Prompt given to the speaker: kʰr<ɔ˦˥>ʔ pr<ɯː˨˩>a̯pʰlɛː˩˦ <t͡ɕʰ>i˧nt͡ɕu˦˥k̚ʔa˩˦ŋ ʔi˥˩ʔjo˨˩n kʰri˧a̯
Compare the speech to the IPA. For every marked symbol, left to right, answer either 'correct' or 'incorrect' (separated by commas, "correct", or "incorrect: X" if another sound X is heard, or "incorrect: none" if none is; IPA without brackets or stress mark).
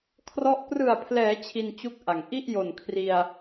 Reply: correct, incorrect: ɯ˨˩, correct